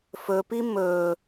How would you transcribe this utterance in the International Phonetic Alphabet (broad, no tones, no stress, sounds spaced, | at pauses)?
f ɵ p i m ɵ